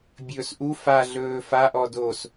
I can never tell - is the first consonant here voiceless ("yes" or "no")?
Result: no